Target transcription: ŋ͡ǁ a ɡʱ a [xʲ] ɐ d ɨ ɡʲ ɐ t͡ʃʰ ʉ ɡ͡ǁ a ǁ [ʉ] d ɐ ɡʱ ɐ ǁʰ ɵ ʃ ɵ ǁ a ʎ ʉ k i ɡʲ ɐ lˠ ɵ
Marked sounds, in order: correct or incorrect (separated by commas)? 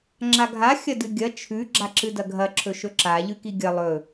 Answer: correct, incorrect